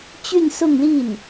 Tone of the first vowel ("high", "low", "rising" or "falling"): falling